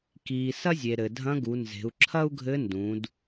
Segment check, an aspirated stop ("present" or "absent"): present